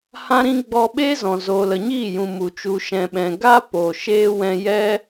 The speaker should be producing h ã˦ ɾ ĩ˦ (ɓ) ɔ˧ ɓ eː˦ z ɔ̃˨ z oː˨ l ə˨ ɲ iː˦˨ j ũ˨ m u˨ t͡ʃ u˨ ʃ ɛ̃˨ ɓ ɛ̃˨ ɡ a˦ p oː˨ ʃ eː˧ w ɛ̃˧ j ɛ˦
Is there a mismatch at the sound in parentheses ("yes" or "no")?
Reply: yes